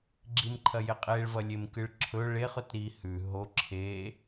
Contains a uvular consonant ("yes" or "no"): yes